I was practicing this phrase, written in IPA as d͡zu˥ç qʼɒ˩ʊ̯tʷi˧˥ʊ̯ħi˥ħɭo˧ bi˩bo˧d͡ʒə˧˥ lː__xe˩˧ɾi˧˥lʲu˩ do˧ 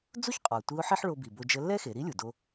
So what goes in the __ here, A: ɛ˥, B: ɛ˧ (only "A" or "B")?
A